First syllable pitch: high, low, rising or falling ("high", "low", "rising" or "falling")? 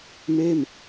falling